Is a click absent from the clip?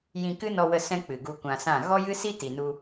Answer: yes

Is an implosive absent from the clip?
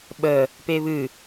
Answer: no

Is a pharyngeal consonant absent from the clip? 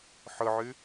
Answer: no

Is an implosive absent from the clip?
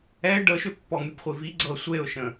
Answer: yes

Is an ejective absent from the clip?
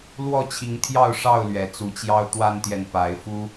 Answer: yes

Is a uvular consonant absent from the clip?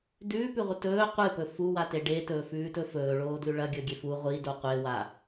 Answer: no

